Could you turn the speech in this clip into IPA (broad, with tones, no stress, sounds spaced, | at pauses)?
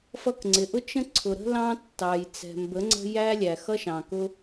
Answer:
f ʌ˧ k ŋ͡ǀ ɪ˨ ʔ ʊ˦ t͡ʃ ə̃˦ ǀʰ ʊ˨ ɾ ə̤˦ l ɑ̃˦ tː ɑ˨ j t͡s ɛ̤˨ m b ə˨˦ ŋ͡ǀ ə̤˦ j æ˦ lʲ æ˨ x ʌ˦ ʃ ɑ̃˨ k ʊ˦